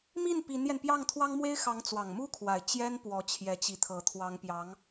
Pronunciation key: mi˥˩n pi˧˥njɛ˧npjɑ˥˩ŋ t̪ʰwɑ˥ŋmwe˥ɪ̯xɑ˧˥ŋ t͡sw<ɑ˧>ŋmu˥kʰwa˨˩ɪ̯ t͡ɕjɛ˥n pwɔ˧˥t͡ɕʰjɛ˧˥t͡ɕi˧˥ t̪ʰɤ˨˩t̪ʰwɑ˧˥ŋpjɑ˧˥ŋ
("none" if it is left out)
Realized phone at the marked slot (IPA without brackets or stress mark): ɑ˨˩